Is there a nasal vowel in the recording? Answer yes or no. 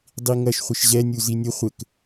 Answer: no